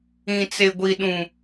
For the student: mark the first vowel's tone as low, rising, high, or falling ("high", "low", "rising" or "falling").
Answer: low